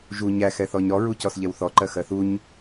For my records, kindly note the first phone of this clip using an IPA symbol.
ʒ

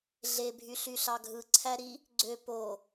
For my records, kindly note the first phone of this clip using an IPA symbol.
ɮ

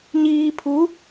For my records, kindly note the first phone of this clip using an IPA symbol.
ɲ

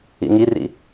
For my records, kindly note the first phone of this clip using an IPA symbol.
ḭ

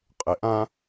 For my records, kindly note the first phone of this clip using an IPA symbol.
qʼ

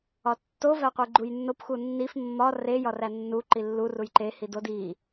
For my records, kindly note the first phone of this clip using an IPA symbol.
ɒ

